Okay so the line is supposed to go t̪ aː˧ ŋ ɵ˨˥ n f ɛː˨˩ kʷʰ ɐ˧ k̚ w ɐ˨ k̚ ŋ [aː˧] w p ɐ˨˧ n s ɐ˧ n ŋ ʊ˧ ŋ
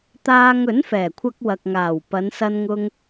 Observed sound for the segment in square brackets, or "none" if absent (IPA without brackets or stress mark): aː˨˩